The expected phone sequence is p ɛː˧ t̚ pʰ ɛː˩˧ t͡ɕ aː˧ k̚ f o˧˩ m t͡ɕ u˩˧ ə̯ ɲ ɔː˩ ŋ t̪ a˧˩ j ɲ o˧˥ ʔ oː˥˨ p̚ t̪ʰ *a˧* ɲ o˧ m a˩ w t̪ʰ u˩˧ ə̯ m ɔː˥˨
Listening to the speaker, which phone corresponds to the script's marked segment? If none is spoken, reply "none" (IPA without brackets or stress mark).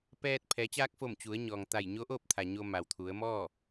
a˩